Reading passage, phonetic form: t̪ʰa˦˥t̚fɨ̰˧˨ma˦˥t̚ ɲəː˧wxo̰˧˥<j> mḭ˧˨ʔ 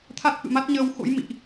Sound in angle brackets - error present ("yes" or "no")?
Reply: no